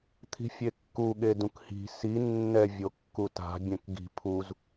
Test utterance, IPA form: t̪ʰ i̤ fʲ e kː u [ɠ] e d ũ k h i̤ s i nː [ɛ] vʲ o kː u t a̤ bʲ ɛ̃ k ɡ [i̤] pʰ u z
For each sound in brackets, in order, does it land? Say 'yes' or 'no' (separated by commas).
yes, yes, yes